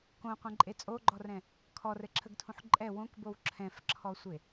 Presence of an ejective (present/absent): present